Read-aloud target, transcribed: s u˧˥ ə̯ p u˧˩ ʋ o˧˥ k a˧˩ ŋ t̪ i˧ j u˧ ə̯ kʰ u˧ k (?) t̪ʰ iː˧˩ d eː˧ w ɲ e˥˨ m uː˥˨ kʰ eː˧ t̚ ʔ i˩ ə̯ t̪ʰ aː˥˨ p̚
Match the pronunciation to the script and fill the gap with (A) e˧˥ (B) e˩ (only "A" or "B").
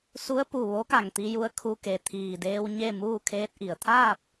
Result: B